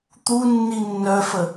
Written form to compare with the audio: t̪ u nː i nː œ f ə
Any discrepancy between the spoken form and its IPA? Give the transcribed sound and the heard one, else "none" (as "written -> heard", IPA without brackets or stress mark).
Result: none